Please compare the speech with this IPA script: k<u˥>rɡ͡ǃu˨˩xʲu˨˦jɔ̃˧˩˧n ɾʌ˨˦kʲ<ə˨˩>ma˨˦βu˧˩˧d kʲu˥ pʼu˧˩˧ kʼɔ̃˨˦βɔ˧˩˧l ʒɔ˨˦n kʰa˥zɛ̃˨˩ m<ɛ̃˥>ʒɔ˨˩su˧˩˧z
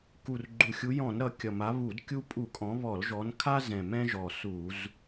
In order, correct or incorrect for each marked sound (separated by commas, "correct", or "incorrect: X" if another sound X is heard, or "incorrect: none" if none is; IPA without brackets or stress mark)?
incorrect: u˨˩, incorrect: ʌ˨˩, correct